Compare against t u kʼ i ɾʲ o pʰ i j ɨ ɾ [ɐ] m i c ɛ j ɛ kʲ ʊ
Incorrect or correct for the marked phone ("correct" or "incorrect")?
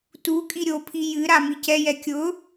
incorrect